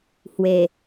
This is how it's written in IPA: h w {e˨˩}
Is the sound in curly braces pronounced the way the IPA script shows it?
yes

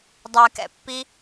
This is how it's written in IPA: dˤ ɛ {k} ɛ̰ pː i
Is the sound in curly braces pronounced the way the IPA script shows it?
yes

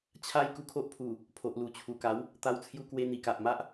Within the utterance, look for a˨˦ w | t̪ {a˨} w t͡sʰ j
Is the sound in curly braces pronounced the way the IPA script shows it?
no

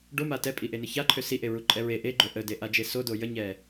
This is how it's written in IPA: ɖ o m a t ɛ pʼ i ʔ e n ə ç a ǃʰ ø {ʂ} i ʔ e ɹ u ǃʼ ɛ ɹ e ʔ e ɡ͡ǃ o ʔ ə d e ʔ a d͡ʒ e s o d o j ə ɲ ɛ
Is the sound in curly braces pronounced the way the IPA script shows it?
no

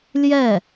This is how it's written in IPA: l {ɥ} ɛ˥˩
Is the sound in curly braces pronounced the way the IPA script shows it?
no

